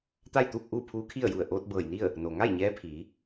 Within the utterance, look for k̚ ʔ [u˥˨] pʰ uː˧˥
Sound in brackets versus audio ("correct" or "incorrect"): incorrect